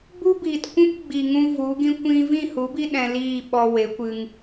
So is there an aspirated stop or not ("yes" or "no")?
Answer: no